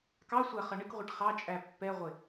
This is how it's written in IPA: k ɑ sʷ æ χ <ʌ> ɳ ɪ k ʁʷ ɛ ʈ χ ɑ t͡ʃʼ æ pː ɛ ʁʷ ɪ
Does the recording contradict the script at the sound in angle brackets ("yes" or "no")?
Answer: no